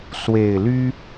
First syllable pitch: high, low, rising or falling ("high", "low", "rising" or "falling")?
low